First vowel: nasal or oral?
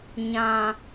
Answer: nasal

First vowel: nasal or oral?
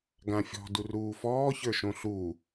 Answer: nasal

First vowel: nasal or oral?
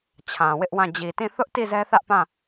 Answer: nasal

